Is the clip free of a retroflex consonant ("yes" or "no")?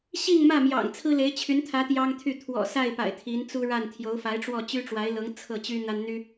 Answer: no